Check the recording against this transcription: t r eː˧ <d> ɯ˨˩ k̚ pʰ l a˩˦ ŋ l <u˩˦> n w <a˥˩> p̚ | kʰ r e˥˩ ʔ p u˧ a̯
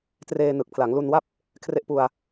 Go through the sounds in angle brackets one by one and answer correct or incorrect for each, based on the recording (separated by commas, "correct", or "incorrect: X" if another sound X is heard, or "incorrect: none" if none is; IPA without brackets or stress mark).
incorrect: n, incorrect: u˧, correct